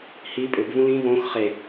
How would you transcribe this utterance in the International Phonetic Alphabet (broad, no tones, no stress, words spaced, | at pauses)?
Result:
hi pʼʏbvũ lĩ võx χe